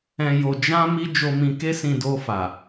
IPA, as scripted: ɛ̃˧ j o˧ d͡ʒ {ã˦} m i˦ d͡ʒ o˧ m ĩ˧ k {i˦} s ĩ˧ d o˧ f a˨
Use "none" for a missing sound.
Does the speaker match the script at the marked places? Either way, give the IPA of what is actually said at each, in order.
ã˦, e˦

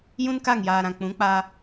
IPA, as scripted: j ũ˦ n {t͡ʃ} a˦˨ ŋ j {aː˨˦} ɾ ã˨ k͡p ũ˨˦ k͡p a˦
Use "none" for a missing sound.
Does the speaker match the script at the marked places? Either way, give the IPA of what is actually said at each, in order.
k, aː˨

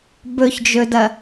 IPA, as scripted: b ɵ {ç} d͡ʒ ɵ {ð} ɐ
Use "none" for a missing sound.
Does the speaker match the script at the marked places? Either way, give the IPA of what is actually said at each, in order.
ç, d

